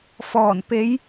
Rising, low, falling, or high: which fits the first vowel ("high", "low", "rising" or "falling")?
low